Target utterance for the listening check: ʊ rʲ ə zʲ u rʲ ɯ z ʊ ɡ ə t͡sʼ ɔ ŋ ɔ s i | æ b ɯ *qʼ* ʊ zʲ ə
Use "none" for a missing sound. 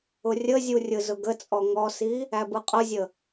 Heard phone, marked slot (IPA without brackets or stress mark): qʼ